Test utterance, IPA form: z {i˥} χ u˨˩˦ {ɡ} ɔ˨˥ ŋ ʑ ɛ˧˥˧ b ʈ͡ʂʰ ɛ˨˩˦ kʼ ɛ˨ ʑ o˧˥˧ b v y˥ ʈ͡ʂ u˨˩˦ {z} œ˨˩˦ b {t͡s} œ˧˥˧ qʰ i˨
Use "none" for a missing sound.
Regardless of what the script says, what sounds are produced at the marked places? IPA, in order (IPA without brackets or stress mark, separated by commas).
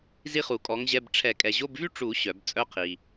i˥, kʼ, ɕ, t͡sʼ